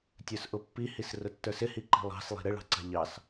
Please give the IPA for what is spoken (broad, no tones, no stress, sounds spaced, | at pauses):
tʲ ə˞ s ʔ ʊ pː i h i s r ʊ tː ə˞ s ɪ h i ǃ i̤ lˠ ɑ̤ s lˠ i̤ ɾ ɪ ɭ ɑ̤ ǀ ɑ̤ ʎ ɑ s